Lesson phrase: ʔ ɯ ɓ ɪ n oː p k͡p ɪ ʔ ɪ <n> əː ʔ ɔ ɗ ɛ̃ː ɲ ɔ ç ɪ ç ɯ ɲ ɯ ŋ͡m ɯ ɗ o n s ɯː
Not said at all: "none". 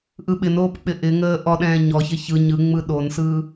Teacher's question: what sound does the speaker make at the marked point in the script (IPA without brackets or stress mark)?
ŋ